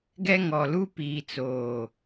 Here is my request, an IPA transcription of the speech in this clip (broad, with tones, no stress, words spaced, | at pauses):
ɡɛ˦ŋɔ˨luː˦ piː˨t͡soː˨